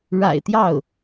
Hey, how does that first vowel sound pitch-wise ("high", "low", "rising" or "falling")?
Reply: low